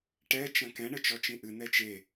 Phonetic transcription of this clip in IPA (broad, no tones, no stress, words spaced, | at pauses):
ʈɛ t͡ʃɐ̃kɛ̃ ɳɘt͡ʃɔt͡ʃĩʔɨ nɛt͡ʃe